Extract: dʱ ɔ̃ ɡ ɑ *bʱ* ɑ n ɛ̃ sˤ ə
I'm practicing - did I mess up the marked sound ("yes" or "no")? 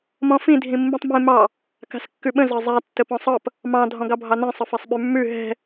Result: no